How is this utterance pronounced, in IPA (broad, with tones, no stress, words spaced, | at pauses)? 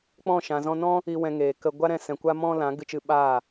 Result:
k͡pɔ̃˦˨ ʃã˨zɔ̃˧nɔ̃˦ | i˨wɛ̃˨ ŋeː˨kə˧ ɡʷa˦ɾɛ̃˧sɛ̃˨ kʷa˦mɔ̃˦lã˨˦ ɡɨ˧t͡ʃɨ˧ɓaː˦˨